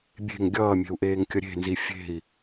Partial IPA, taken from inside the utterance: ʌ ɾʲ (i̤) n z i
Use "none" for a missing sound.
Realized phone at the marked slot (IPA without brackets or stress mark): e̤